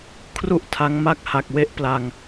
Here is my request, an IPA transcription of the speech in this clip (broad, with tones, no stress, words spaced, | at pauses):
kʰru˥˩ʔtʰa˦˥ŋma˥˩k̚ ha˨˩k̚we˦˥ʔpla˧ŋ